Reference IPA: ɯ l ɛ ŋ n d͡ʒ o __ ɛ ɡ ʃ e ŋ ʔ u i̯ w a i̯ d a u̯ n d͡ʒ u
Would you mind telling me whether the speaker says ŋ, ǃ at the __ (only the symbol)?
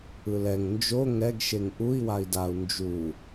ŋ